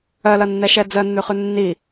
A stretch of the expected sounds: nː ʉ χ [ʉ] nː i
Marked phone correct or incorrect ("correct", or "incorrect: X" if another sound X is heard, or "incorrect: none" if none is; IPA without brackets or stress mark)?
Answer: correct